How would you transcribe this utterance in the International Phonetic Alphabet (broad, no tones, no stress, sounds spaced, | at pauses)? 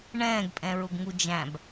ɳ ɛ̃ː ɡ pʼ ɛ̃ ɹ ʊ ɡ ŋ u d͡ʒ æ̃ b